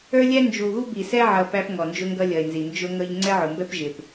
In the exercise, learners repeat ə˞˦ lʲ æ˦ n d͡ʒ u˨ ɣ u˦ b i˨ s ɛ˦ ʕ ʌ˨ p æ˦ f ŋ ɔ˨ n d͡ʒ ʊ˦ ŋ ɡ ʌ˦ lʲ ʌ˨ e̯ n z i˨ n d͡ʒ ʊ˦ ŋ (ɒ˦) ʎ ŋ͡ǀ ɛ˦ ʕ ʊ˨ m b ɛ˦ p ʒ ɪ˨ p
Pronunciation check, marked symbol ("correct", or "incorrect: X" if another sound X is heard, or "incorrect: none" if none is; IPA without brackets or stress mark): incorrect: ʌ˦